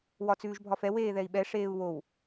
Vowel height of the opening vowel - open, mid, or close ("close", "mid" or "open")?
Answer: open